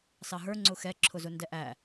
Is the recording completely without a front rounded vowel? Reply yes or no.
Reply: yes